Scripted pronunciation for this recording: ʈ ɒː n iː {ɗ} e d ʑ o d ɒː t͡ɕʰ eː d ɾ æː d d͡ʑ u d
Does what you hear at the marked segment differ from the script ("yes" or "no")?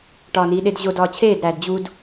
no